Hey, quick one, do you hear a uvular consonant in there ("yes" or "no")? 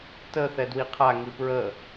yes